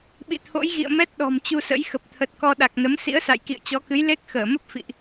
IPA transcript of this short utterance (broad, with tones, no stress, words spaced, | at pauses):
ɓḭ˧˨t̪ʰo̰˧˥jɣḭ˧˨ə̯ mɛ˦˥t̚ ɗɔ̤˨˩mt͡ɕu˧sə̰˧˥j xə˨˩p̚t̪ʰə˨˩t̚kɔ˧ ɗa˨˩k̚nə˨˦m sḭ˧˥ə̯ sa̰˧˨jkḭ˧˨ə̯t͡ɕɔ˨˦kɨ˨˦j le˦˥k̚xəː˧˩mə˦˥p̚ fḭ˧˨ʔ